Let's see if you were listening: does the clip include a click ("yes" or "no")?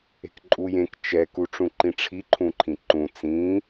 yes